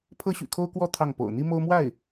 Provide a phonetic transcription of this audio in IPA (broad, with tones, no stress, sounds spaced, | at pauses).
pʰ ɤ˥ ɕ y̰˨˩ kʰ o˥ ʊ̯ k w ɔ˥ t̪ʰ ɑ˥˩ ŋ p o̰˨˩ ʊ̯ n̪ i˥ m o˥ ʊ̯ m w a˥˩ ɪ̯